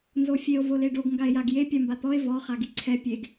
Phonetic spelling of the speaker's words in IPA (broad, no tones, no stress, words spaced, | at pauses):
nzofʲeo̯ voleɖoɡ ŋɡae̯jaɡje pʲambat̪ɔe̯ vɔ χaɡiǀʰɛ pʲeɡ